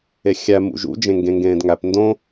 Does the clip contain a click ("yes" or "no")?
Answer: no